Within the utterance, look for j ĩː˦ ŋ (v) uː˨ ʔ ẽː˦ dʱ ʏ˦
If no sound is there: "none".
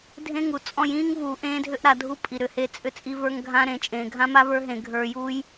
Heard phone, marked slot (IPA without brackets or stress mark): v